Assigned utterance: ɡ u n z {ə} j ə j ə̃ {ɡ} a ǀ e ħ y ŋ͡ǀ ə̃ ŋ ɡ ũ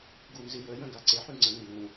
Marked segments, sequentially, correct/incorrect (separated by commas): incorrect, correct